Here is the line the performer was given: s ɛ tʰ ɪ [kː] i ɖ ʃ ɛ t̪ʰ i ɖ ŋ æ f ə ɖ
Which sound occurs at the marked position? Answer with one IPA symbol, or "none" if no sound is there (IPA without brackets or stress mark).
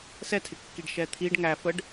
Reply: kː